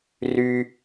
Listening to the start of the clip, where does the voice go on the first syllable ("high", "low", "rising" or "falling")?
high